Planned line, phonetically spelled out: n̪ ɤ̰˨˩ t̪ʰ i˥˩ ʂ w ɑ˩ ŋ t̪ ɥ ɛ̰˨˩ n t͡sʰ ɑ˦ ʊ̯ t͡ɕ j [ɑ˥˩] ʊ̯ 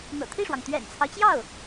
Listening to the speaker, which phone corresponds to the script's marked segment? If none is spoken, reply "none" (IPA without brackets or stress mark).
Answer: ɑ˥˩